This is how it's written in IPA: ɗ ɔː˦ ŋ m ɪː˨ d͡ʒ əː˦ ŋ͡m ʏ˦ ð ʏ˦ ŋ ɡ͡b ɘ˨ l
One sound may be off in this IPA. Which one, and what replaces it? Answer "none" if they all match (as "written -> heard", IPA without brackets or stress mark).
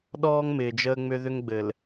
none